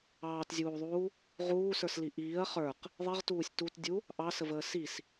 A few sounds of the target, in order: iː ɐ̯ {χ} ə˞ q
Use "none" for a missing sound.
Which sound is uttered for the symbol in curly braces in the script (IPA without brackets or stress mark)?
χ